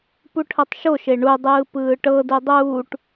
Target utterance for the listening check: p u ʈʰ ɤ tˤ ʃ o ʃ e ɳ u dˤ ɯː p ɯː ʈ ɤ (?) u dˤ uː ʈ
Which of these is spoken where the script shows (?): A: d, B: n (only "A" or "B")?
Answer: A